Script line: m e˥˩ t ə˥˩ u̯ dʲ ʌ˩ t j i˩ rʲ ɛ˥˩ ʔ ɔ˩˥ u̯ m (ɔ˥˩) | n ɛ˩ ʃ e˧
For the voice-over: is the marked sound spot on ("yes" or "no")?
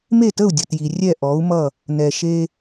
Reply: no